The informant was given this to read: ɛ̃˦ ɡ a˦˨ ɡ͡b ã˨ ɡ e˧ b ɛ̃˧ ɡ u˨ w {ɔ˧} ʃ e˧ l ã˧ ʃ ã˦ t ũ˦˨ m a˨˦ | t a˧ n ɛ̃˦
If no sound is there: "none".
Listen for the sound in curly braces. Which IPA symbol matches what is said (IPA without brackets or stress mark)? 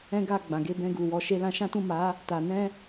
ɔ˧